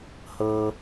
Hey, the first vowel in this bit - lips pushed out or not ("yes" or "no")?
no